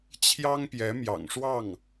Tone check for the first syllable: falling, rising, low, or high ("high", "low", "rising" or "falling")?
high